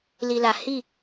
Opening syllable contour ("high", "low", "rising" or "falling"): low